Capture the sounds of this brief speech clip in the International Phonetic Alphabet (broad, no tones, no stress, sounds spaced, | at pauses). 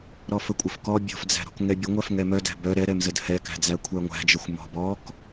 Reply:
ɾ ɔ f ə kʷʼ ə f k ɔ bʲ ɔ̤ f d͡z æ̤ ɾ ɔ̤ k ŋ ɛ bʲ ə ŋʷ æ f ŋ ɛ m œ d æ̤ b œ ɾ ɛ ɾ ɛ m z ə d h ɛ k æ̤ d͡z æ kʷʰ æ ŋʷ æ̤ d͡ʒ ə xʷ m ɔ̤ b ɔ k